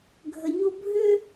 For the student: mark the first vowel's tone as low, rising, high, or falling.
low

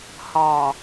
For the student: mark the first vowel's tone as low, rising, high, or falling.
low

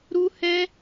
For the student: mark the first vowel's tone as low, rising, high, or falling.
high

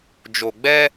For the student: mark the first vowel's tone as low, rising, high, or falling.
low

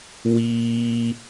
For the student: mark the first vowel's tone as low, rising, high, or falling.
high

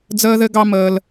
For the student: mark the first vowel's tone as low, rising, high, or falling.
high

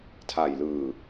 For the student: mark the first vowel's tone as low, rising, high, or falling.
low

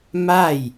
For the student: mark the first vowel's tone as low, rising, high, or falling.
falling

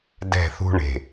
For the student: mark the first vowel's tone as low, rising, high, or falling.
falling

